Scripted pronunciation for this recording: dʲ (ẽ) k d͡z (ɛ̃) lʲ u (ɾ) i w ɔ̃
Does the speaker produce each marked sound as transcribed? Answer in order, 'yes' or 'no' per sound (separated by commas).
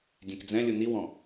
yes, yes, no